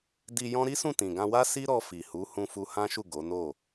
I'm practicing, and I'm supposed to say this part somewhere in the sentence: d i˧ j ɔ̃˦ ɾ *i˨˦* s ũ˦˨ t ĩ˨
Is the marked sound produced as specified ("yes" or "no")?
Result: no